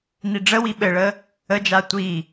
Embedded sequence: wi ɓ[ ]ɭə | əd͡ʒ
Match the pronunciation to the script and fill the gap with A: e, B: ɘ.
B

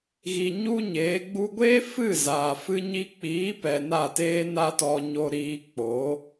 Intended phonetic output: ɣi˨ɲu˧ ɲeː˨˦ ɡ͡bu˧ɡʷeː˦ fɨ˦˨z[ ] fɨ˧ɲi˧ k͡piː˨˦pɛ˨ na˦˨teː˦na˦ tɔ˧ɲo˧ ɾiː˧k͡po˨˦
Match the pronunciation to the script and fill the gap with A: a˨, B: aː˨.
B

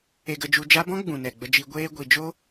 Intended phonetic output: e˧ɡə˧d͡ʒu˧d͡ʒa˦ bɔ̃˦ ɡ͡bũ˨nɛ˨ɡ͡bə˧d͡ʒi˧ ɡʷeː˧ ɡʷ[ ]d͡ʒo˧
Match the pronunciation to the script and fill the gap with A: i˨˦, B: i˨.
B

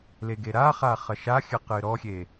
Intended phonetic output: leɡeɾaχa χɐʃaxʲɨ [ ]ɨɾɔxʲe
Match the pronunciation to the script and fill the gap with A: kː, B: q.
B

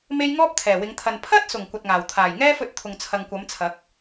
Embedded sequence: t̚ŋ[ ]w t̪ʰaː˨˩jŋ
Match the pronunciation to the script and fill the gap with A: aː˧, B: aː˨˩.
B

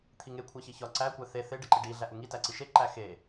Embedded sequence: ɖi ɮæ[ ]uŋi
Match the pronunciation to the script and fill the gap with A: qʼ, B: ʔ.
B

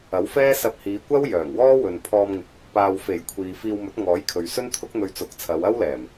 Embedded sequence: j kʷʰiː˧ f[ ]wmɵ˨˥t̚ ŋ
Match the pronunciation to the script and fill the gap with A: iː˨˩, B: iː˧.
B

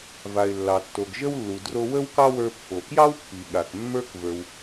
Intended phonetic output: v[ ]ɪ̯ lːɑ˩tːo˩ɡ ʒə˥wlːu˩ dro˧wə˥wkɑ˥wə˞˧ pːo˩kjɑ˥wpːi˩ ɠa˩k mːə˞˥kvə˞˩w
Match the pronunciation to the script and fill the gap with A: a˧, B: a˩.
B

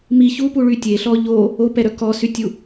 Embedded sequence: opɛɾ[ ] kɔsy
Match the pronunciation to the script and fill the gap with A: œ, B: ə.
A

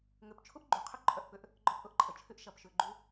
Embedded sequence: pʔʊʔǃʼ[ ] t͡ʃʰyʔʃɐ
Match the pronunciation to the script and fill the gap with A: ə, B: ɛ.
A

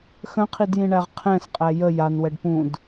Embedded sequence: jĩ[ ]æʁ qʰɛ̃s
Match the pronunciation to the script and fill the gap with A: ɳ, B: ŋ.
A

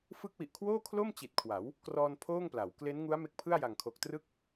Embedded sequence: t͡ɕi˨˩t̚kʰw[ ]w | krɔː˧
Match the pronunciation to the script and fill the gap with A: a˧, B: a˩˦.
B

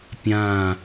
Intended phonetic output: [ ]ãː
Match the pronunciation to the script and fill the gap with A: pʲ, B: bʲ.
A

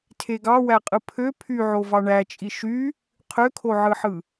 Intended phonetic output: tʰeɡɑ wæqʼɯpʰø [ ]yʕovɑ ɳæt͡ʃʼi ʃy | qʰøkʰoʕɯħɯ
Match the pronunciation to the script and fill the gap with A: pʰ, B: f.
A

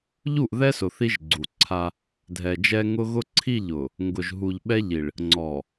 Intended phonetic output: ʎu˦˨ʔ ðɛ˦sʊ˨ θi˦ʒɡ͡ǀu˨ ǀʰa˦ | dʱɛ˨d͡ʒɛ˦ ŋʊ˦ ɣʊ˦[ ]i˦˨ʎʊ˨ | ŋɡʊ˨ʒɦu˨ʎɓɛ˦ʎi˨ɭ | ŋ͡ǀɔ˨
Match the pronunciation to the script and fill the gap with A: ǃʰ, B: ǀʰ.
B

